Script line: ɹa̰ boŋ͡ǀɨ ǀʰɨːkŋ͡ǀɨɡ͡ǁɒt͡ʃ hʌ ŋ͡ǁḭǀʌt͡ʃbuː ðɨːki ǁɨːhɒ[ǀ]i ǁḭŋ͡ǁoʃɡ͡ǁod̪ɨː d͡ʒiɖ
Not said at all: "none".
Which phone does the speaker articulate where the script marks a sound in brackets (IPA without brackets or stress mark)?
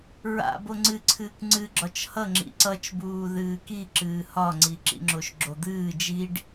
ŋ͡ǀ